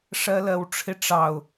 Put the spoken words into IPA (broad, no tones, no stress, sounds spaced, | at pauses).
ʂ ɜ l ɜ w ʈ͡ʂʰ ɪ ʈ͡ʂ ɑ ʊ̯